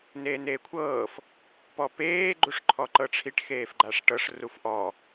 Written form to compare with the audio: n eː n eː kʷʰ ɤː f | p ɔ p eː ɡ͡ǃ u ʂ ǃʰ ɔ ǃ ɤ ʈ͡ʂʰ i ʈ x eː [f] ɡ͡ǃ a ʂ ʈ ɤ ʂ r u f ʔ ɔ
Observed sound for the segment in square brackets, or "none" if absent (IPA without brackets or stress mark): f